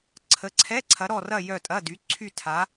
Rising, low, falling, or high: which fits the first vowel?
rising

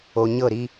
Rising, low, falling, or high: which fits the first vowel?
low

